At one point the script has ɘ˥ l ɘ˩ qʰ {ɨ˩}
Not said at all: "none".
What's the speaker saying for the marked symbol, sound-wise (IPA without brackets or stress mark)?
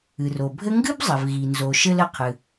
ɨ˩